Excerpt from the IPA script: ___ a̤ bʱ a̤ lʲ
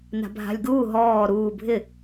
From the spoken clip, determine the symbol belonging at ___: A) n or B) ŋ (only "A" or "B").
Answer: A